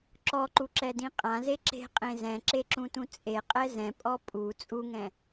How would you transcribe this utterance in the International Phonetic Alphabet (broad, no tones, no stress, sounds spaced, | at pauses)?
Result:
ǁ ɔ ǃ u ǁ ɛ d ĩ qʼ ã z e ǁ e̤ qʼ ẽ z ɛ̃ ǁ e ǁ ũ t ũ t͡sʼ e qʼ ɛ z ɛ̃ pʼ ɔ pʼ u t͡sʼ u ŋ ɛ̃